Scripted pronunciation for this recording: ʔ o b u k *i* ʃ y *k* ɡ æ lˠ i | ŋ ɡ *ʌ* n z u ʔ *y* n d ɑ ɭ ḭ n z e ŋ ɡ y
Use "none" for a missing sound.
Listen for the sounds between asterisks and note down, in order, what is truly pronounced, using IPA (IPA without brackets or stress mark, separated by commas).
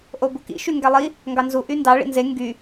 ḭ, ŋ, ɑ, y